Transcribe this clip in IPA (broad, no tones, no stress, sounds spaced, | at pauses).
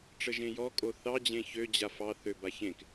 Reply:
ʈ͡ʂ ə ʒ ẽ j ɔ kʼ o θ ɑ d͡ʑ ẽ ç ø d͡ʑ a f ɑ θ ø b a ç ẽ k